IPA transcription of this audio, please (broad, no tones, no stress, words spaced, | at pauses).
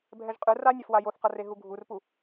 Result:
bʱɛʒqʼɯ ranʲafwa joθqʌreɦu ɡʱurpu